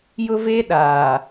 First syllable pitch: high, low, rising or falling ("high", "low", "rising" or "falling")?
high